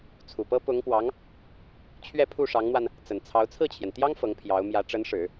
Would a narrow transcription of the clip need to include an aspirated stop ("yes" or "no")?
yes